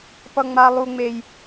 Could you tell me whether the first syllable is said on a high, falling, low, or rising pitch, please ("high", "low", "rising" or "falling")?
high